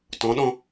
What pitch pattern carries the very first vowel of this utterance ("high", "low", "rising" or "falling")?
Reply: rising